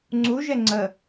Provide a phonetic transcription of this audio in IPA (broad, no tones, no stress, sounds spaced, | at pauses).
ŋ͡ǀ u ʒ ɛ ŋ͡ǀ ə